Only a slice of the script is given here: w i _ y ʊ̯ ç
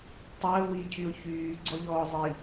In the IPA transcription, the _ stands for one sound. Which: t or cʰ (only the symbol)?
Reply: cʰ